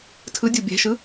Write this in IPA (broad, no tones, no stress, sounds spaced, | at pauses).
tʰ ɯ dʲ u bʲ ɛ̤ ʃ ɯ